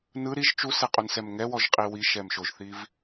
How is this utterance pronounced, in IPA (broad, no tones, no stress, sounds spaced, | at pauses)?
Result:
n ɯ ɾ i ʒ t͡ʃ u s e qʼ u n s ɛ m ŋ ɛ w ɔ ʒ qʼ i w i ʃ ɛ m ʃ o ʒ θ i v